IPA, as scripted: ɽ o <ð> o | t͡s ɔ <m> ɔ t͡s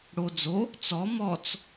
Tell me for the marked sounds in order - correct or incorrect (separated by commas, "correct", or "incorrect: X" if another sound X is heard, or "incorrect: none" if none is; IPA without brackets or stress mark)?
incorrect: d͡z, correct